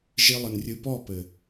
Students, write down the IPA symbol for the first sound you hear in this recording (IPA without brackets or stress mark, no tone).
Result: ʒ